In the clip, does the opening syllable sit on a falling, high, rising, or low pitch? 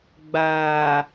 low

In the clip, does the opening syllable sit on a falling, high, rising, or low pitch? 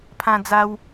high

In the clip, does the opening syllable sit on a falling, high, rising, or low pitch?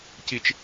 low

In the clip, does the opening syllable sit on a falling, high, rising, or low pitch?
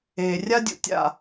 low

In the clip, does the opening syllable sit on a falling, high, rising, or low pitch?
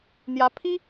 rising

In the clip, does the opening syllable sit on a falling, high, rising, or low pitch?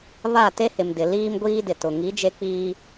falling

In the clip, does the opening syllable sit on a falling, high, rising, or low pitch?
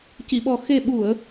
low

